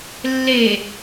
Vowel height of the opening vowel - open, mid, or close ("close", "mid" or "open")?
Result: mid